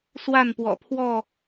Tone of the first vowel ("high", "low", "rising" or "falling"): falling